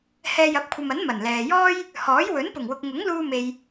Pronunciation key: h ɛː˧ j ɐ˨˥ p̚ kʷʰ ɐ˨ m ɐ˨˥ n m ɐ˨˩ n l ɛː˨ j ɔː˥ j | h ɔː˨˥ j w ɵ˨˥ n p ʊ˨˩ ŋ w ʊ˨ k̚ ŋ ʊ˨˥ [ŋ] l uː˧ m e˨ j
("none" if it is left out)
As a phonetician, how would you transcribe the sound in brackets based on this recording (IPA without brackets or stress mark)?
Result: ŋ